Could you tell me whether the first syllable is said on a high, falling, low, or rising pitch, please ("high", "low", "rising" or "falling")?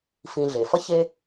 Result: low